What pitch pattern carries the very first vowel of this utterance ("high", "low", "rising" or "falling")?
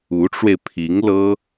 rising